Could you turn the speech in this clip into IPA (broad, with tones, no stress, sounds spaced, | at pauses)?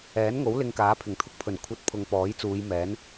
ɛː˨˥ n ŋ o˨˥ w l ɪ˧ ŋ k aː˨˥ pʰ ɪ˨˩ ŋ t̪ʰ ʊ˧ k̚ pʰ ɵ˨˩ n kʷʰ ɐ˧ t̚ pʰ ʊ˨ ŋ p ɔː˨˥ j t͡s uː˨˧ j m ɛː˨˥ n